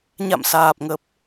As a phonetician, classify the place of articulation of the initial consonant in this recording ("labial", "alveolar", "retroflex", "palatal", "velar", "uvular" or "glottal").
palatal